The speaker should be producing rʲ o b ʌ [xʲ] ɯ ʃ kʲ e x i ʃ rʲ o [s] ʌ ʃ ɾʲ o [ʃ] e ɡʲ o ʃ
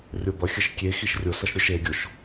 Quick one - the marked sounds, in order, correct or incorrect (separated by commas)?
correct, correct, correct